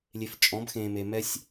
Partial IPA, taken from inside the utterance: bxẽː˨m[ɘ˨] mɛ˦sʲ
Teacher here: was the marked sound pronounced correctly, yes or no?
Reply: no